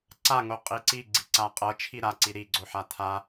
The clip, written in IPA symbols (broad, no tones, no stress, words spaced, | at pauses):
ǀaŋo qʼiǀi ɡ͡ǀiǀaqʼɤ t͡ʃʰiɾaǀi ɾiɡ͡ǀoħa tʰa